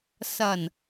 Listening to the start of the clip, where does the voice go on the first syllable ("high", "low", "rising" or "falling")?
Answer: low